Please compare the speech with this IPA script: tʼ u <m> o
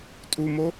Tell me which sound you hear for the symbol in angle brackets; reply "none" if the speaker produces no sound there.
m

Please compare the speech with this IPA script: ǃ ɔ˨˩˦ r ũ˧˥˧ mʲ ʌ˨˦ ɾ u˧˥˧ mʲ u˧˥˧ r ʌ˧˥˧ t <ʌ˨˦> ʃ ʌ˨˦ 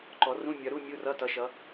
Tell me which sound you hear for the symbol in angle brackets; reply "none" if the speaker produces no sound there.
ʌ˨˦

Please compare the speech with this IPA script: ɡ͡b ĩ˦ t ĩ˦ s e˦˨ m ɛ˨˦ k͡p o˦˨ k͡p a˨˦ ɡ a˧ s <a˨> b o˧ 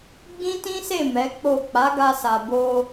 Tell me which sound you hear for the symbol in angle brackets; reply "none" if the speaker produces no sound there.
a˨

